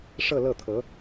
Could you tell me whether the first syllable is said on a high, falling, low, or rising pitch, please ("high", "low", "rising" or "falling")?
falling